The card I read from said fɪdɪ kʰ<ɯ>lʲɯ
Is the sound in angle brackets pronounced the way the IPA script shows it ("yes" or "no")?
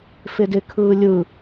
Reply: no